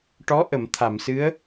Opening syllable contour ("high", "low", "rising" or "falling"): rising